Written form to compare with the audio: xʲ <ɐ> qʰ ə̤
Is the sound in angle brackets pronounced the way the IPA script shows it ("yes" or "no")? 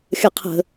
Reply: yes